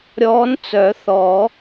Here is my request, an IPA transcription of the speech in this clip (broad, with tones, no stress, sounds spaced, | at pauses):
ɾʲ ɔː˧˥ n t͡s œ˨˩˦ θ ɔ˨˩˦